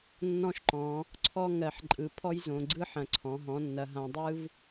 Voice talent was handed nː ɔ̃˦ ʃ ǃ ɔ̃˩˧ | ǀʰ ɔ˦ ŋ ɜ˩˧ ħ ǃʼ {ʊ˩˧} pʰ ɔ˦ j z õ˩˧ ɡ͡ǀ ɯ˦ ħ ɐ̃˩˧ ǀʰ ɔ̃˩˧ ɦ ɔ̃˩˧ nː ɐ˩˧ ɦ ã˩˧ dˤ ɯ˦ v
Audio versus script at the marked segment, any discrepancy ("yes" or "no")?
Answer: yes